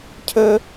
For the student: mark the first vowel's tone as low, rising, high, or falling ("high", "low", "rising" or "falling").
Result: high